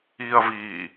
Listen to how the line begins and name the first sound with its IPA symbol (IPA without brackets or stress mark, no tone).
iː